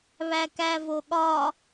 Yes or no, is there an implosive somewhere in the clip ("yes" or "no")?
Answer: yes